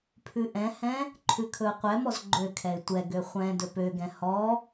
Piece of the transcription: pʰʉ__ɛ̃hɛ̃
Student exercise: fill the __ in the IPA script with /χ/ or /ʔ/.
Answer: ʔ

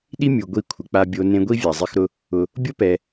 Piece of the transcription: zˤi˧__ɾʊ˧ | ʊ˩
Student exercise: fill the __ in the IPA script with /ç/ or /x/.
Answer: x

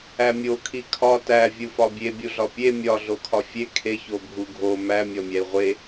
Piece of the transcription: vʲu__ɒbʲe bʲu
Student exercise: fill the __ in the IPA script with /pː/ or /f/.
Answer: f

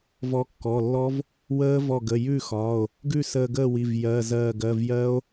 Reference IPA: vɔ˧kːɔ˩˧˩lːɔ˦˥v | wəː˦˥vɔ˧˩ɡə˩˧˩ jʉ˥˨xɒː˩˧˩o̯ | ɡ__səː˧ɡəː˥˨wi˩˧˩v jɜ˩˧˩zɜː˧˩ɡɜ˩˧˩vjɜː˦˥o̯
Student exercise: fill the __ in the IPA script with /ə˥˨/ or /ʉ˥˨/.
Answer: ʉ˥˨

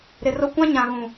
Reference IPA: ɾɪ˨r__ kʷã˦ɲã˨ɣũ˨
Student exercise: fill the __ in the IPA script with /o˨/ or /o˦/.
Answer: o˦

